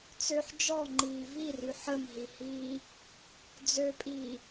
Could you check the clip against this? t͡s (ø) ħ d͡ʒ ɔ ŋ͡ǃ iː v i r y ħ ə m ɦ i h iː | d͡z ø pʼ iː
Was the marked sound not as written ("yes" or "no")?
no